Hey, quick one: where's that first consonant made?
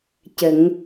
palate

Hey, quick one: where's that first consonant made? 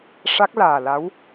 retroflex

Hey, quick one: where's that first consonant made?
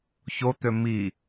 palate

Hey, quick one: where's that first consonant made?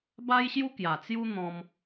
lips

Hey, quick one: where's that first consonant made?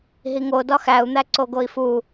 throat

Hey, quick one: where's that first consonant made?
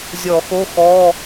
tongue tip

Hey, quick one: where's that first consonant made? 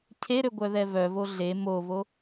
palate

